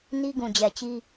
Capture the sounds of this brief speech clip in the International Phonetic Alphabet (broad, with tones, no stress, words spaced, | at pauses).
ni˦ɡũ˨d͡ʑɛ˨t͡ɕi˦